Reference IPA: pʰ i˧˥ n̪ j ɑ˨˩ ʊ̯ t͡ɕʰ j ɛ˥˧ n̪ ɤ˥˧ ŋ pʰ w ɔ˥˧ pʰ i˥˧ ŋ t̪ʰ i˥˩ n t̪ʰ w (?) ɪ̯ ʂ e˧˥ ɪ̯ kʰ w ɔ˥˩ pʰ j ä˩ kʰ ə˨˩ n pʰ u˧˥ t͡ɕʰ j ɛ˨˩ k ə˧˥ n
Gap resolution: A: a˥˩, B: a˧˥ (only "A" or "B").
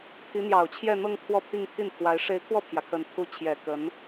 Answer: B